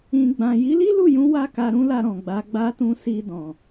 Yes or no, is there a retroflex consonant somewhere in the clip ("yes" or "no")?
no